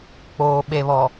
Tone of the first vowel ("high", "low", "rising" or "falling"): low